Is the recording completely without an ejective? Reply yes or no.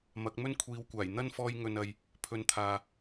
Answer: yes